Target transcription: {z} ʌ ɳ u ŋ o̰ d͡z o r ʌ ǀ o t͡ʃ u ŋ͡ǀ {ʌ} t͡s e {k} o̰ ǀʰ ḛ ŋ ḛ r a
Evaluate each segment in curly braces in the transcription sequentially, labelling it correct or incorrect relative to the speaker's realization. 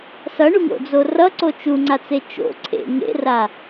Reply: incorrect: s, incorrect: a, incorrect: t͡ʃ

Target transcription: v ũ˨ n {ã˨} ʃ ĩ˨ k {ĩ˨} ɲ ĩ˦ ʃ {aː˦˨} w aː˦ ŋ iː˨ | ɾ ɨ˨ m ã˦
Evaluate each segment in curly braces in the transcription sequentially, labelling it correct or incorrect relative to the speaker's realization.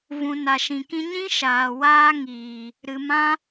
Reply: incorrect: a˨, incorrect: ĩ˦, incorrect: aː˨

